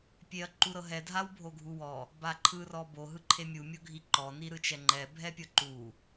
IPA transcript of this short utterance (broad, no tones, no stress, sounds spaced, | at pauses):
pʲ e ɐ̯ ǃ u ɾ ɤ ɦ ɛ dʱ a w bʱ o ɡʱ u w ɔ | b a ǃʰ ɯ r ɔ b o ɦ ɯ ǃʰ e mʲ u mʲ o ɡʱ i ǃ ɔ n i ɾ ɯ t͡ʃ ɛ ŋ͡ǃ ɛ bʱ ɛ pʲ ɤ ǃ u